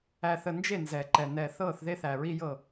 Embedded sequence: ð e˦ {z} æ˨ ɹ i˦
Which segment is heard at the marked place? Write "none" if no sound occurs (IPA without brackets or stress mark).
θ